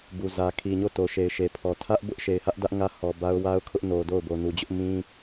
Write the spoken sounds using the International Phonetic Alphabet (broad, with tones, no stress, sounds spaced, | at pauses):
b u˨ z ä˨ kʰ i˨ ɲ o˦˨ t o˨ ʃ e˨ ɪ̯ ʃ e˨ pʰ ɔ˨ tʰ ä˦ ʔ b ʊ˦ ʔ ʃ e˨ ɪ̯ h ä˦ ʔ d ä˦ ʔ ŋ ä˦ h ɔ˨ b a˦ ʊ̯ w a˦ ʊ̯ kʰ ʊ˦ ʔ n o˨ d o˦˨ ʊ̯ b o˨ n u˨ d͡ʑ ʊ˦ ʔ m ĩ˦